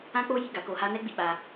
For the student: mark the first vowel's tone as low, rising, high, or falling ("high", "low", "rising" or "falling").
high